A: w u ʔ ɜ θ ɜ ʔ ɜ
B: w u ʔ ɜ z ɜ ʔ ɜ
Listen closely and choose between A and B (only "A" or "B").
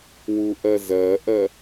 B